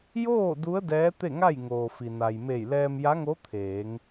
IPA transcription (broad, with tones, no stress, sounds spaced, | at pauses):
j oː˥˨ d u˧˥ ə̯ d ɛː˧˥ t̪ e˥˨ ŋ a˥˨ j ŋ oː˩ f i˩ n a˩ j m e˧˩ j l ɛː˧ m j a˧˥ ŋ o˧˥ t̪ʰ eː˩˧ ŋ